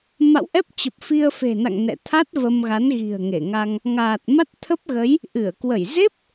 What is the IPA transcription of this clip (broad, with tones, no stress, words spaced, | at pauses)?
ma̰˧˨wʔɛ˦˥p̚t͡ɕə˨˩p̚ fi˧ə̯fe̤˨˩na̰˧˨ŋ nɛ̰˧˨t̪ʰa˦˥t̚və˧m ɣa˨˦nɣi̤˨˩ə̯ŋe˧˩ ŋa˧ŋ | ŋaː˨˩t̚ma˦˥t̚t̪ʰə˦˥p̚ɣə˨˦j | ʔɨ˧˩ə̯kwə˧˩jze˦˥p̚